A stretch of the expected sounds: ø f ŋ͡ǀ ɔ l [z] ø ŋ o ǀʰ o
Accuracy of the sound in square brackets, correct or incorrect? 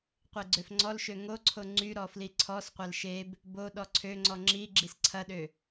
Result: incorrect